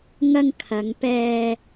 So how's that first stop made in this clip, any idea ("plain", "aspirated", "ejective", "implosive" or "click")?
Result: aspirated